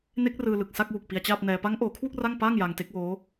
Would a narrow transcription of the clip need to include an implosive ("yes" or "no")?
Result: no